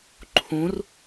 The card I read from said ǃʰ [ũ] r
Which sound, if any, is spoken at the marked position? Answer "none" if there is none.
ũ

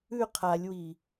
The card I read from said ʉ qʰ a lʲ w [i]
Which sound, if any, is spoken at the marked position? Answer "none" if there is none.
i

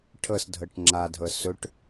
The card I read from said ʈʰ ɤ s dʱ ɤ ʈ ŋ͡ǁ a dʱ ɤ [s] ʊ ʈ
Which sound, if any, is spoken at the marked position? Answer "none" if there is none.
s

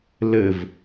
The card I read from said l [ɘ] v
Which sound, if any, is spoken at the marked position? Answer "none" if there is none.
ɘ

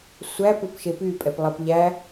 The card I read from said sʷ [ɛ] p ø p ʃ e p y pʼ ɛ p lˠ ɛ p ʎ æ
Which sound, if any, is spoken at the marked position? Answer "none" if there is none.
æ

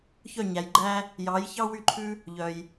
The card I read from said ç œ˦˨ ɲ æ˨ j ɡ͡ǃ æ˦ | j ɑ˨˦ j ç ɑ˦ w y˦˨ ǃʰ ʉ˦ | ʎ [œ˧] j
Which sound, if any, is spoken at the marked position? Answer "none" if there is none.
œ˨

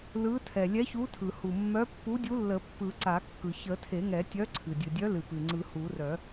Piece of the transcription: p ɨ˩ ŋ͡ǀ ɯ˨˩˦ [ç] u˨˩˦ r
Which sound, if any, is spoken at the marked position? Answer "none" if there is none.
h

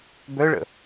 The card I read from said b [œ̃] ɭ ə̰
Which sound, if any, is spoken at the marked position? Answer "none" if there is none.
œ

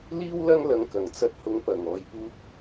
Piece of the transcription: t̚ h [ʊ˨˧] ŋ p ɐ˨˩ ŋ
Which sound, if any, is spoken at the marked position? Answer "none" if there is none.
ʊ˨˥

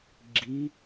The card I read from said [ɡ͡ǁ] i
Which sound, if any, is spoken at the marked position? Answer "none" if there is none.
ɡ͡ǁ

